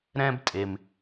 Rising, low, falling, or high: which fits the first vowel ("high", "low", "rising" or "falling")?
high